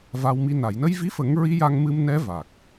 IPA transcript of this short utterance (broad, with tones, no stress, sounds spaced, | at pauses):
v a˧ w m i˧ n a˨˩˨ j n ə˧ j v i˧˥ f ə˨˩˦ ŋ ɹ i˧˥ j a˧ ŋ m ɨ˧ m n ɛ˧˥ v a˨˩ k̚